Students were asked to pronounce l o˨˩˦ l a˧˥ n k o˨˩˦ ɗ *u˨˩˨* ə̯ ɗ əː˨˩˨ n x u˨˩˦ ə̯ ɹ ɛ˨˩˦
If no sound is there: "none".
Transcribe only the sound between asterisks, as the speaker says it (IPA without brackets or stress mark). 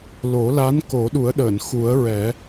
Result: u˨˩˦